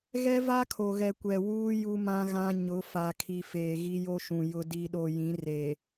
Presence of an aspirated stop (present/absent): present